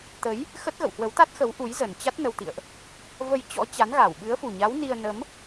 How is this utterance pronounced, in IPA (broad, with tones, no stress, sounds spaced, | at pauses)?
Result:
t̪ ə˨˦ j | x ə˦˥ t̚ ɣ ə̰˧˨ w h w ə˨˦ w t̪ a˦˥ t̚ x ə˨˦ w ʔ u˨˦ j z ə˨˩ n t͡ɕ a˦˥ t̚ n ə˧ w t̪ ḭ˧˨ ə̯ ʔ | v ə˧ j t͡ɕ ɔ̰˧˥ t͡ɕ a˨˦ n ɣ a˧˩ w ɓ ɨ˨˦ ə̯ f u˨˩ ɲ a˨˦ w n i˧ ə̯ n ə˨˦ m